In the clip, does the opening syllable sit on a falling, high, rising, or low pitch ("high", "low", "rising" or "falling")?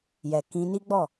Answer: low